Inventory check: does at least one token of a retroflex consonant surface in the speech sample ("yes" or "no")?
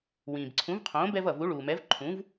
yes